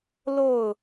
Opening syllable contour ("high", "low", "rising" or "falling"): falling